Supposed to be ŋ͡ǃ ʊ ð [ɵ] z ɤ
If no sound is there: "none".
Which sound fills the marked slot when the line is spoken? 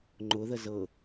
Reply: ə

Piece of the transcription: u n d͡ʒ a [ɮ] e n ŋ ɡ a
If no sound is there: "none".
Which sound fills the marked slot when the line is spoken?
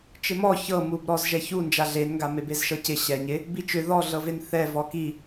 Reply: ɮ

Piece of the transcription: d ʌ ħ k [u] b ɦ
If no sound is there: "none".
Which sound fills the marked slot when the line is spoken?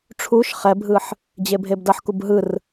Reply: u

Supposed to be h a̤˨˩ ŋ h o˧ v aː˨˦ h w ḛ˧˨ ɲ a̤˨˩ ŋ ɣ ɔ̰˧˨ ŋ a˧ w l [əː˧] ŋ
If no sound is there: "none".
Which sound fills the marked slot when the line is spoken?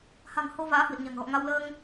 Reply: əː˧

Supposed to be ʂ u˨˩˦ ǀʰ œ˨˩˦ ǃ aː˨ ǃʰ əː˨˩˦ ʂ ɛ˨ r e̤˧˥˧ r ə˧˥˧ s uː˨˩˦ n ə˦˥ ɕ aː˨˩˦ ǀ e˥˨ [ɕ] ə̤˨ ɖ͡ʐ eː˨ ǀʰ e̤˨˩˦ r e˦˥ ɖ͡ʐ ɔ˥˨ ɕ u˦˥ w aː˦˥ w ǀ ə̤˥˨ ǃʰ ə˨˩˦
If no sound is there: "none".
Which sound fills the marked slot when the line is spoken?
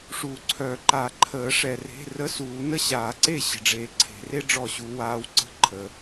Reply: ɕ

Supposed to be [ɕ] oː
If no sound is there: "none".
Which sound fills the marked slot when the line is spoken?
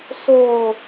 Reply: s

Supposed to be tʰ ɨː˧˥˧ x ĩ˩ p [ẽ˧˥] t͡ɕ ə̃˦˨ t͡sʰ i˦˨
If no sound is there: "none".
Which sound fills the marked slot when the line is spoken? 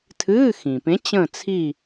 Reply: ẽ˧˥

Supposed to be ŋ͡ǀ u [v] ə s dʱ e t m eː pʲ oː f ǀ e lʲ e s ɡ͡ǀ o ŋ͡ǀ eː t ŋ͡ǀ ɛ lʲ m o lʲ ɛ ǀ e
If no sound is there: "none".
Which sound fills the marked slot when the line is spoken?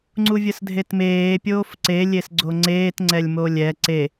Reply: vʲ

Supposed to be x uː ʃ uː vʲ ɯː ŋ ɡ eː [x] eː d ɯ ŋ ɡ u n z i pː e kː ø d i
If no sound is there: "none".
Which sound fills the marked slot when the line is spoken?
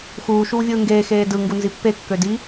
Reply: x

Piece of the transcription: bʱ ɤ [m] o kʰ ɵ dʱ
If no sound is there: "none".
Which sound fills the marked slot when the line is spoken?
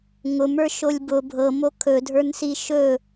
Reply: m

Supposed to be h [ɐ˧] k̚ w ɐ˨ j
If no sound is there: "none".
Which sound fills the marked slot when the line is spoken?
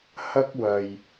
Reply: ɐ˥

